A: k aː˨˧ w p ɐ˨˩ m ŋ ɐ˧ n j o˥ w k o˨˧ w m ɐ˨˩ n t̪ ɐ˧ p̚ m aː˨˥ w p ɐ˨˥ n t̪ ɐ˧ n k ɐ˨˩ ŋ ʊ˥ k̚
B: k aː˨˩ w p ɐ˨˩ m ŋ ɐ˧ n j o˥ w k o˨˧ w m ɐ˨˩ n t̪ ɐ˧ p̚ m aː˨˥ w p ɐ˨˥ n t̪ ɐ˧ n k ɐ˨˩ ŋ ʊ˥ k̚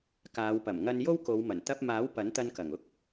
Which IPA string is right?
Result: A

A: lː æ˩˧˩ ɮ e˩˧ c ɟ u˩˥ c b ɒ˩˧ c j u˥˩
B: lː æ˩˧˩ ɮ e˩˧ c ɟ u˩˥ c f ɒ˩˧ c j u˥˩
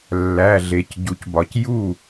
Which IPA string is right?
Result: A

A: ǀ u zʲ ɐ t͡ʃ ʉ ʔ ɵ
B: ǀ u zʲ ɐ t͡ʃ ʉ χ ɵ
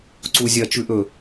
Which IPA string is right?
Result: A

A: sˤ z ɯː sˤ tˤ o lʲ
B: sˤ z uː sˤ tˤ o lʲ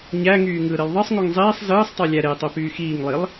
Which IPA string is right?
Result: A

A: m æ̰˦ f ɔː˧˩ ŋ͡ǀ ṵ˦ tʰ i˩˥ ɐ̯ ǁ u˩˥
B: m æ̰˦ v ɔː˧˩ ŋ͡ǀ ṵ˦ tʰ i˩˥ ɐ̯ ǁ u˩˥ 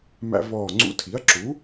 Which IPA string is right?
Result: B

